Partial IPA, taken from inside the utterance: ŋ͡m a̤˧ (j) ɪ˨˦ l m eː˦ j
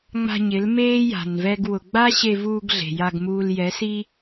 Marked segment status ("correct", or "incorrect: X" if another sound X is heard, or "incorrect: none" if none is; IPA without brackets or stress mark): incorrect: ɲ